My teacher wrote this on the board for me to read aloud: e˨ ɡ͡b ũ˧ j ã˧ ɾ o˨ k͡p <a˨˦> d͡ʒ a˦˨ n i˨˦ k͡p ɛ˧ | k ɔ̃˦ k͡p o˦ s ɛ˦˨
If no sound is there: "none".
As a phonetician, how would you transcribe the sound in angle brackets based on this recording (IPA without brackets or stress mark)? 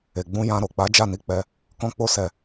a˨˦